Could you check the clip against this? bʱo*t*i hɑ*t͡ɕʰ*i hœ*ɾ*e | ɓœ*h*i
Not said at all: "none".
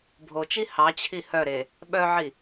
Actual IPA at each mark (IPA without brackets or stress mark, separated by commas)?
t͡ʃ, t͡ɕʰ, ɾ, ʕ